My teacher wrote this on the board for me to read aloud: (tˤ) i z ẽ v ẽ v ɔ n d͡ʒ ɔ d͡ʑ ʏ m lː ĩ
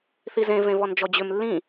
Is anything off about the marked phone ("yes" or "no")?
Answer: yes